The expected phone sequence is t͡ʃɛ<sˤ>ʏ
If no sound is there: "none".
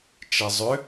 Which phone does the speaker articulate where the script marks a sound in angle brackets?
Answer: zˤ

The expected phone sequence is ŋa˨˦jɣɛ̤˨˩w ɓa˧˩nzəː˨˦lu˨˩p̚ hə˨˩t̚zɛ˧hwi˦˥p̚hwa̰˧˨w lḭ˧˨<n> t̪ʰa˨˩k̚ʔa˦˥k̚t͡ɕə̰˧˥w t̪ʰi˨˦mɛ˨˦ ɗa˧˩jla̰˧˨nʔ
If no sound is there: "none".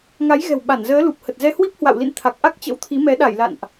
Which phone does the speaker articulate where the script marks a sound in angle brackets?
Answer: n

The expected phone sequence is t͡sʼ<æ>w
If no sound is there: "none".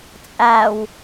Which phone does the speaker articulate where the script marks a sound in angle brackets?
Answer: æ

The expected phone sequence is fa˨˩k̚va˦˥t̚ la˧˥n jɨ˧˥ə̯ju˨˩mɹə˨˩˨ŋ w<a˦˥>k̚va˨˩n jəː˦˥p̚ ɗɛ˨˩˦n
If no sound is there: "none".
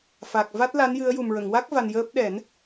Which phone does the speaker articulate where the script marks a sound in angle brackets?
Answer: a˦˥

